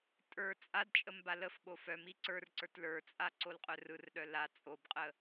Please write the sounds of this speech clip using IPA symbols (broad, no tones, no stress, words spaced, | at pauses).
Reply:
tʼə˞ t͡sʼadt͡ʃʼəm baləfɓo fœmi ǀə˞rǀə˞t lə˞t͡sʼa ǀolqʼœrɯrɗœ la t͡sʼobqʼə